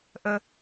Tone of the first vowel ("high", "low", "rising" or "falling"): high